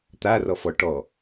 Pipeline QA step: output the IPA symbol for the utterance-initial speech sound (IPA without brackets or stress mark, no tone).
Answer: t̪